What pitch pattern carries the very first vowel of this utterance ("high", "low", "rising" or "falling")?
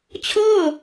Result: falling